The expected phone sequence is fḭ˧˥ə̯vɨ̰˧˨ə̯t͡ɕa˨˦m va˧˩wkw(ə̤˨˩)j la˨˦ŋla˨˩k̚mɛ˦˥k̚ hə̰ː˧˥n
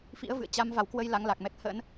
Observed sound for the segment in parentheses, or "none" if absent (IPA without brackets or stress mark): ə˧